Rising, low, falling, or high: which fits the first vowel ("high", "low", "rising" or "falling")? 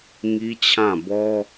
high